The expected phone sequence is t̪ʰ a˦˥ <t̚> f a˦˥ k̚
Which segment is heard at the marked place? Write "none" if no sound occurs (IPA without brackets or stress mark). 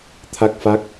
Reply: k̚